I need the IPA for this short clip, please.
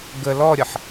ɡ ə l ɔ ɾʲ ʌ ħ

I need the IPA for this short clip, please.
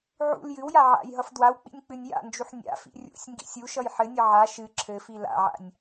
ʕ ṵ l j ɨ w j a ʕ a̰ j ɦ ʌ f d w a w k͡p ḭ nʲ k͡p ɨ nʲ j a̰ n d͡ʒ u ħ nʲ a̰ f ḭ rʲ ṵ sʲ ŋ ɡ ḭ sʲ u ʃ ʌ j ħ ɘ nʲ ʌ ʕ a ʃ ɨ ǁʰ ɘ f i l a̰ ʕ a̰ nʲ

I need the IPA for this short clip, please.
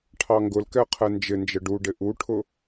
ʈʰ ɑ ŋ ɡ ʊ l k ɛ qʰ ɛ n d͡ʒ ɪ n d͡ʒ ə ɖ u ɖ ɪ ʔ u ʈʰ ʊ

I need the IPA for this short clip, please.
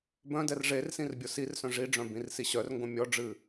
b œ̃ d ɛ r ʐ e r s ĩ r bʲ o s i r s œ̃ ʐ i ɖ͡ʐ œ̃ b ĩ r s i ɕ œ r ŋ ɡ õ mʲ ɔ ɖ͡ʐ ɨ

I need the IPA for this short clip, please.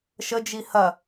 ʃ ə d͡ʒ i h ɐ

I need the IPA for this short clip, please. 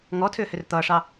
ŋ ɔ tʰ ʏː h ʏ r t̪ ʌː ʂ ɑ

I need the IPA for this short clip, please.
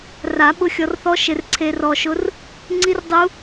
r a˨˩˦ ɓ ʊ˧ xʲ ɔ˧ r θ ɔ˦˥ ʃ ɪ˧ r ǀʰ e˧ r ɔ˧ ʃ ʊ˦˥ r | ŋ͡ǀ i˦˥ r dˤ u˦˥

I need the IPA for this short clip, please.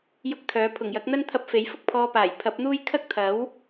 j ʊ˥ k̚ t̪ʰ œː˨˥ pʰ ʊ˨˩ ŋ j ɐ˨˥ k̚ n̪ ɐ˥ n t̪ʰ ɐ˧ p̚ f e˨˥ j f ʊ˥ k̚ pʰ ɔː˧ p aː˨˩ j pʰ ɐ˨˥ p̚ n̪ uː˥ j kʰ ɐ˥ k̚ t̪ʰ ɐ˨˥ w

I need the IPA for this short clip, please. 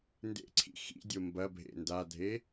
n d ḛ ǀʰ ḭ x ḭ dʲ o m b ɐ bʱ ḛ n d a dʱ e

